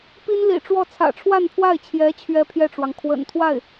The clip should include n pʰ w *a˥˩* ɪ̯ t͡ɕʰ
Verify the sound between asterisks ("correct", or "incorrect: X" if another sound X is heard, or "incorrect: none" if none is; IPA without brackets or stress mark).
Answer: correct